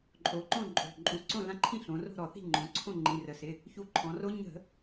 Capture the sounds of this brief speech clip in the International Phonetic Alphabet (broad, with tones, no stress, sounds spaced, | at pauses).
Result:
ǃʼ o˩˧ ǃ õ˥˨ ǃʼ o̤˩˧˩ ǃʼ u˩˧˩ ǀ õ˥˨ l ã˦˥ ǃʰ ĩ˥˨ ɬ õ˩˧ r o̤˥˨ ɾ ɔ˧˩˧ θ i̤˥˨ ŋ͡ǃ õ˩˧ ǀʰ õ˥˨ ŋ͡ǃ ĩ˩˧˩ r ə˩˧ s ɪ˩˧˩ | ç u˧ ǃʰ ɔ̃˩˧ r o˦˥ ɲ ə̤˧˩˧